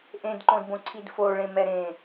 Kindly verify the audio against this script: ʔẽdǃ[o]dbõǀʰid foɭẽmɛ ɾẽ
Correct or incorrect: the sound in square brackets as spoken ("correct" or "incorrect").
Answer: incorrect